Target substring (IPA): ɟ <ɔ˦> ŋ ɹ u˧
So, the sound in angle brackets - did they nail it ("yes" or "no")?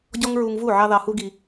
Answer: yes